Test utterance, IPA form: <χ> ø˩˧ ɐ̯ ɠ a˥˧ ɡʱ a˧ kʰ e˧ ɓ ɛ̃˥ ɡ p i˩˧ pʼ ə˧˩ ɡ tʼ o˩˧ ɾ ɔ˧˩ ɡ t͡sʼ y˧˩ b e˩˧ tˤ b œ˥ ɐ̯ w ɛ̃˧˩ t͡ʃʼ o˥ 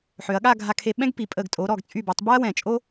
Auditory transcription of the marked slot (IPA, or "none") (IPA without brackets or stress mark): ħ